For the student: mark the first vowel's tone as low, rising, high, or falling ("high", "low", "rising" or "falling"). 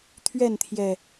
falling